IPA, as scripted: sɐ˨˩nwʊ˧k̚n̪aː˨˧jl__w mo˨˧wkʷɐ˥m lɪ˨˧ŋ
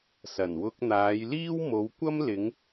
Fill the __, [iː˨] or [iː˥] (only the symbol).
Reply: iː˥